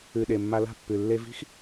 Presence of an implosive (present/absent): present